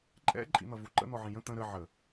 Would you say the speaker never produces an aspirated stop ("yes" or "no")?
yes